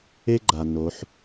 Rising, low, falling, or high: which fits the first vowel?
high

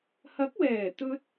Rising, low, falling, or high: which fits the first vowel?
rising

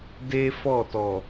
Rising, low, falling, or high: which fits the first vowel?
high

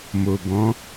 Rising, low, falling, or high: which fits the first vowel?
low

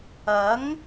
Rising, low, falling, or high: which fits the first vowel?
rising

